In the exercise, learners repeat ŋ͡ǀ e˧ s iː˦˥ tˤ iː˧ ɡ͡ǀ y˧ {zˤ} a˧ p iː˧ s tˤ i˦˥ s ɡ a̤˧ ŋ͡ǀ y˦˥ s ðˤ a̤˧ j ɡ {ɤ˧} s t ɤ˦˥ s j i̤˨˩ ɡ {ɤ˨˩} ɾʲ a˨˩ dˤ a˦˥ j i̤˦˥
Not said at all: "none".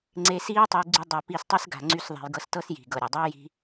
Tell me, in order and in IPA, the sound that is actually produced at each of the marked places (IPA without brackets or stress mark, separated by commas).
dˤ, ɤ˧, ɤ˨˩